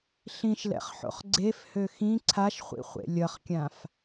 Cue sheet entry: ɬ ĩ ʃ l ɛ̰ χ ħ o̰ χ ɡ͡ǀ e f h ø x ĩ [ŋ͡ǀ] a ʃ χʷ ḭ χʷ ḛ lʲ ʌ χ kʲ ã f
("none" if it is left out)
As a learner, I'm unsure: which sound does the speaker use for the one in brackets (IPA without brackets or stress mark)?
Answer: ǀʰ